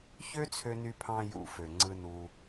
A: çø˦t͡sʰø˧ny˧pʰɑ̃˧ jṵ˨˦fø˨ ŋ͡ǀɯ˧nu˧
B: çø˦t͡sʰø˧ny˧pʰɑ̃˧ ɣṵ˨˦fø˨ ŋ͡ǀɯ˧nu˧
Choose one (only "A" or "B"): A